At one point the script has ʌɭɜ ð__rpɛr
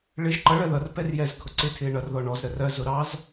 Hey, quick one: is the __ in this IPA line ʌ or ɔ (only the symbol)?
ʌ